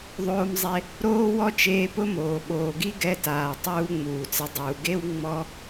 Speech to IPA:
ðˤoː˧mzˤe˧ | ɾoː˥ wɔ˥t͡ʃeː˧pʊ˥moː˩ ɓoː˩ɡi˥ ɡɛ˧taː˩tˤuː˧ ŋ͡muː˩t͡sɪ˧dˤuː˩ ɡe˥w ŋ͡mɔ˥

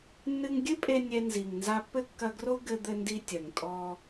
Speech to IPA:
nːɨ˧ŋɡʲɨ˥pʼe˧ nʲɛ˧nzi˩ŋ nza˧pːɘ˥ kːɐ˧ɡro˥ ɡɘ˧ d̪ɘ˧ndi˧ tʲɐ˩ŋtʼɔ˧

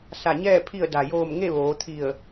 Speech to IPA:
sa˧˩ɲɛː˥˨ pʰi˧˩ə̯ da˩joː˧˩m ŋe˥˨ʋoː˩˧t̪ʰi˧˩ə̯

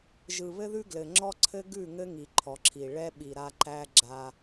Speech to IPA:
ʒɯ˨βɘ˦ðʉ˦ ɡlɘ˨ŋ͡ǁɔ˦ǀʰɘ˦ ɡʉ˦˨ŋɘ˦ŋi˨ ǃʰɔ˨ǁʰi˨ ɭɛ˦ ɓi˨ɾa˦ ǃæ˦ ɡ͡ǁa˦

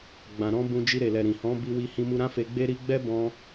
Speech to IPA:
ɡ͡bã˨ɾɔ̃˧ bũ˧d͡ʒi˧ ɾe˨lɛ˨ ɾĩ˨ hɔ̃˨˦bi˧ wi˧hĩ˧mu˧ɾã˦ fe˧ɡ͡be˦ ɾi˧ɡ͡bɛ˦bɔ̃˧

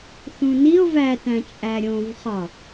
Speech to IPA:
θũnio̯ vætæ̃ t͡ʃʼæɾʲõvχɒ

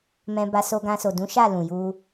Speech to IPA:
mɛ̃˧ba˧so˧ɡã˧ so˨dũ˨˦ʃa˦˨ lũ˨ju˧

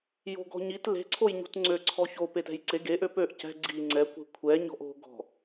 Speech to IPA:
jo̤ɡɔ̤ɲit le̤ǀʰoj ɲṳtŋ͡ǀø ǀʰɔço petɛ̤jǀe ɡeʔø pøʔ cɛ̤ ɡ͡ǀi ŋ͡ǀɛkʷe̤ kʷʰɛɲɔ̤ʔ o̤ɡɔ̤

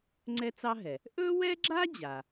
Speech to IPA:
ŋ͡ǀɛ˥t͡sɑ˥ɦɛ˩ | ʔɵ˥wɛ˥ɡ͡ǁa˥ d͡ʑa˩

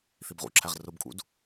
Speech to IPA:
θibʁṵǁʰæʁ rʊbkʼṵd

